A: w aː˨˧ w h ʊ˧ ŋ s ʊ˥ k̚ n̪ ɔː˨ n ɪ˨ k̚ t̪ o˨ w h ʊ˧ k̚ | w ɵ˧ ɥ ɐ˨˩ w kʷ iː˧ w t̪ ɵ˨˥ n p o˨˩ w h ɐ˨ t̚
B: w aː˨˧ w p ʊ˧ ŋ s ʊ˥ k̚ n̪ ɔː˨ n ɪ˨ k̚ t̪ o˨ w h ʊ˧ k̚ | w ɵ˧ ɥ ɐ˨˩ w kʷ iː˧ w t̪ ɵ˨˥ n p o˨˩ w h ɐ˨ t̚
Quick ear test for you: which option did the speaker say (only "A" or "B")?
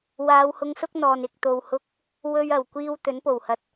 A